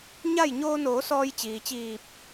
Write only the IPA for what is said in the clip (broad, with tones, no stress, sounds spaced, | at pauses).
ɲ a˥˨ j ɲ oː˧ n oː˩˧ s ɔː˧ j t͡ɕ iː˩ t͡ɕ iː˧˩ p̚